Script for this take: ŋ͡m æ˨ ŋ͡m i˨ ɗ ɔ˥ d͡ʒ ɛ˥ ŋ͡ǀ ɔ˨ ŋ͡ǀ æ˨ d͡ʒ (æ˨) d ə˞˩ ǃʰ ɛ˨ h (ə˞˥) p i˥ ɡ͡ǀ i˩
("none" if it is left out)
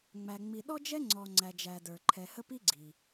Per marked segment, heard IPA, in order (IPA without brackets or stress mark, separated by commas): æ˨, ə˥